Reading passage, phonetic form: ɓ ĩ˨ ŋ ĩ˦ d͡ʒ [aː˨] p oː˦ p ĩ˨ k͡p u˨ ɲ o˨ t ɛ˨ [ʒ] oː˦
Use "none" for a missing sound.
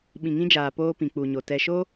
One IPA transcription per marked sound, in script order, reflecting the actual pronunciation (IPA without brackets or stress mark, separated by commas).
aː˨, ʃ